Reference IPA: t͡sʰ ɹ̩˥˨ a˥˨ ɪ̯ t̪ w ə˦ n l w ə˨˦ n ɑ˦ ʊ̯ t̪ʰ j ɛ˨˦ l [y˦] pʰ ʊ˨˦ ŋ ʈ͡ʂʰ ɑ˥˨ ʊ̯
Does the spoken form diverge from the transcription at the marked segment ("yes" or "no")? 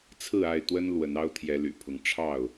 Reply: yes